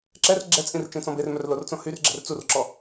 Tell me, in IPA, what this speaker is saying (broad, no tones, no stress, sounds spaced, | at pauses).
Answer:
ǁ ɛ r ɡ͡ǁ ɛ t͡sʼ ĩ r t͡ʃ ẽ t͡s ɔ̃ b e r m œ r l o r t͡s õ h y r ɡ͡ǁ ɛ̤ r t͡s u r ǁ ɔ